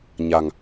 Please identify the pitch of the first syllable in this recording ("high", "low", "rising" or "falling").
low